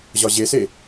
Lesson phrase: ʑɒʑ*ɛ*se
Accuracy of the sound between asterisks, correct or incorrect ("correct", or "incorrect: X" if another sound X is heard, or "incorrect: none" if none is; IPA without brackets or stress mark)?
incorrect: e